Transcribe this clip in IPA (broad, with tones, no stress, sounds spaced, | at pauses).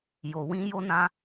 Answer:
j o˧ w ĩ˦ j o˦ n ã˦